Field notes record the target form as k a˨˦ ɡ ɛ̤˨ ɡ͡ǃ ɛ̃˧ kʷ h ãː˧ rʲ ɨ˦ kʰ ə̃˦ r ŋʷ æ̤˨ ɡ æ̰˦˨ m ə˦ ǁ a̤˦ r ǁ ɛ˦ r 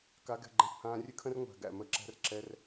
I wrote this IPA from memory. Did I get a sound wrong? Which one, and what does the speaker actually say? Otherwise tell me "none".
a̤˦ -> æ̤˦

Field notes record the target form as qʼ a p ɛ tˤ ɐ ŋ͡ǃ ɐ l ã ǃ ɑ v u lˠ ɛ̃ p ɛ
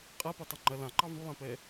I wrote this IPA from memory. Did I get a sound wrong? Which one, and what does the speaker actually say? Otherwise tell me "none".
none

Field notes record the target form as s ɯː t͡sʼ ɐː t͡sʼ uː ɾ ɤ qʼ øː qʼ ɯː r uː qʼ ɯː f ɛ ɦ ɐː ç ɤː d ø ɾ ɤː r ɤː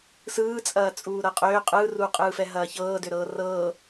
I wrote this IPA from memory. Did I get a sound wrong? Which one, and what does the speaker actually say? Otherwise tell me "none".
none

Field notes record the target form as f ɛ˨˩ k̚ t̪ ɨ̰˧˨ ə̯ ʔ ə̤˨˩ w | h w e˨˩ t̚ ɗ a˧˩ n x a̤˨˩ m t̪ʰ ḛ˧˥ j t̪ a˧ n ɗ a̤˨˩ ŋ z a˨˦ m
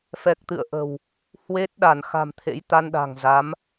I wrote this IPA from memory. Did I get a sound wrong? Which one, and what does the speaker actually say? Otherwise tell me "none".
e˨˩ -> e˦˥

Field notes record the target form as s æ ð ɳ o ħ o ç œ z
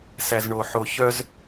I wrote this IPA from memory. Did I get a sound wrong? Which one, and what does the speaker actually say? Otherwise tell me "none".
ð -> z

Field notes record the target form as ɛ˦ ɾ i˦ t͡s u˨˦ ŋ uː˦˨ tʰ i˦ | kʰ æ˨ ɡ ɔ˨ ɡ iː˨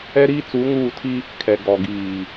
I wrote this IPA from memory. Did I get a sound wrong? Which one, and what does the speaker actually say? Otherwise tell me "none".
æ˨ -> ɛ˨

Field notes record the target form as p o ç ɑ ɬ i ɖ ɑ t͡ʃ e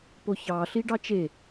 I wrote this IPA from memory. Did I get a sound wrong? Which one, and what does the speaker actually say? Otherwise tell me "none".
none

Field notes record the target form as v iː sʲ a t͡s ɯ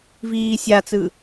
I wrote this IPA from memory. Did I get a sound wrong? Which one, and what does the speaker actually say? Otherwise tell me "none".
none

